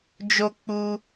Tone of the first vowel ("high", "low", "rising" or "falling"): high